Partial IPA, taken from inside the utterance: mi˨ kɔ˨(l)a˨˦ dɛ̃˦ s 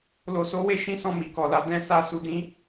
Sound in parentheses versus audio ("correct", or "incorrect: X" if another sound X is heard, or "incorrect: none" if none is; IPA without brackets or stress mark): correct